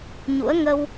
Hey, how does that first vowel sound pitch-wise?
rising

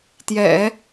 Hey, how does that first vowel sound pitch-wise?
low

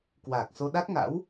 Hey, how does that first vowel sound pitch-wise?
low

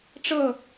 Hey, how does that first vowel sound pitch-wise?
falling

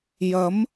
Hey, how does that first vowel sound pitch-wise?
rising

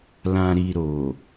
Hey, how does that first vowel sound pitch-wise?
low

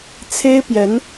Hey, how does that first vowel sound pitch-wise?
high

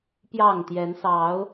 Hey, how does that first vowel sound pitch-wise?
falling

